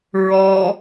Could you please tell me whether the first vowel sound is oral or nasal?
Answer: oral